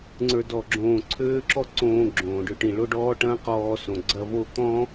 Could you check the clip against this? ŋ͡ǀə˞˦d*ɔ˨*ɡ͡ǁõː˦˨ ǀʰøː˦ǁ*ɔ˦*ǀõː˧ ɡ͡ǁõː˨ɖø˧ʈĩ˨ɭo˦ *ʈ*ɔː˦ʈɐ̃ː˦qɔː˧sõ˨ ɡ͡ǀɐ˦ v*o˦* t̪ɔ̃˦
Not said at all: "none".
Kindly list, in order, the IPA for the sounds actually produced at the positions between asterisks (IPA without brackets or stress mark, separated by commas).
ɔ˦˨, ɔ˦, ɖ, o˦˨